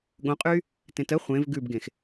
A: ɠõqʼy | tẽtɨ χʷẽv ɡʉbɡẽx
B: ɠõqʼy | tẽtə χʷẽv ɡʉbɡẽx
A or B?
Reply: B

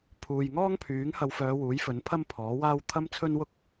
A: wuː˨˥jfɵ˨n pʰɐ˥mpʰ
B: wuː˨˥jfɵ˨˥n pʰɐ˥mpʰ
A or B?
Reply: B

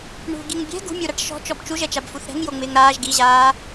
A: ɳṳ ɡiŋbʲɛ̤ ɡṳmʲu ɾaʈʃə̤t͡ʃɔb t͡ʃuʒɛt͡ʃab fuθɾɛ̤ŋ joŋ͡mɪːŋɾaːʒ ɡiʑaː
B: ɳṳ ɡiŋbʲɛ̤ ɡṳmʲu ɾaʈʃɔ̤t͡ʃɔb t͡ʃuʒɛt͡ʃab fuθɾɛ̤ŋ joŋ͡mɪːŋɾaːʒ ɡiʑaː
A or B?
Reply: B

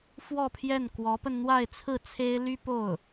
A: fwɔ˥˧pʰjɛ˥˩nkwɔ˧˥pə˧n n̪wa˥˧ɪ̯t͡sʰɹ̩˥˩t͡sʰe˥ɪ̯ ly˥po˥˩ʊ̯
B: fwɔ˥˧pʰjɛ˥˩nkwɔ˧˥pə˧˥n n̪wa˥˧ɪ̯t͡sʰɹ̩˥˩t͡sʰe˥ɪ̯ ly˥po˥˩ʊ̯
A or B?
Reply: A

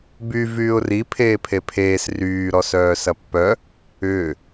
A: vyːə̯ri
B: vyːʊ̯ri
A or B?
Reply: B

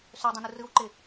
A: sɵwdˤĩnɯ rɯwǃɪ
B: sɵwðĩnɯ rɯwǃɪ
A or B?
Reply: A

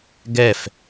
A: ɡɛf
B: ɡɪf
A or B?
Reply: A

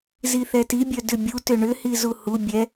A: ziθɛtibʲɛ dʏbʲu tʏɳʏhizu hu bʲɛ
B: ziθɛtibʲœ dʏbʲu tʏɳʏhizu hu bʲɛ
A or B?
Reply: B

